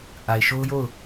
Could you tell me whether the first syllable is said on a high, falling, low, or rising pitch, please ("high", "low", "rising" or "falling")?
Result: low